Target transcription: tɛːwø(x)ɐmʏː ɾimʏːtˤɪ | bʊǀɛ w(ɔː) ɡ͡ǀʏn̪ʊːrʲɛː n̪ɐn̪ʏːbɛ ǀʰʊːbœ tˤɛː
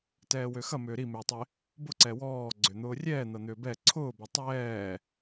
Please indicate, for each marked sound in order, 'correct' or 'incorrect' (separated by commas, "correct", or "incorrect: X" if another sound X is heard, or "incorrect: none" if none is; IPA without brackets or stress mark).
correct, correct